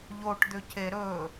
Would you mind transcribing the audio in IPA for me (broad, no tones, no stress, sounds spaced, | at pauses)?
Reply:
ʎ o ʈ d̪ ʏ c e ɾ ɵ